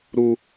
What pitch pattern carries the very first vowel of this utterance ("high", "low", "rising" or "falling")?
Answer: high